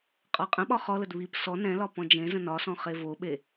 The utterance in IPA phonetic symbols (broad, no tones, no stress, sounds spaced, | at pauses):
qʼ ɒ qʼ ə̃ ɓ ɒ χ ɔ l ə d β i p s ɔ n ɛ̃ l ɒ p ɔ̃ d͡ʒ ẽ z ə̃ n ɒ s ɔ̃ χ e v o ɓ e